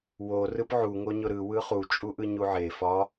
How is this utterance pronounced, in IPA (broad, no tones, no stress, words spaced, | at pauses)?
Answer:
wo rɯpʕu ŋoɲʊɾɯ wɯχu t͡ʃʼuʔɯɲuʕe fɒ